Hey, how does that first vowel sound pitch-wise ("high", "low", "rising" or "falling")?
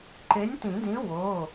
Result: rising